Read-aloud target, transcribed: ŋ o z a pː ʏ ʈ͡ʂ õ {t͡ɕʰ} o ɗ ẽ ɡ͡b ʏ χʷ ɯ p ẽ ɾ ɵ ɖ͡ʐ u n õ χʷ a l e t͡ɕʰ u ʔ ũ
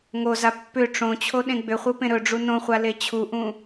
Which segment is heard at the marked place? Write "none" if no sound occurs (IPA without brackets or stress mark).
t͡ɕʰ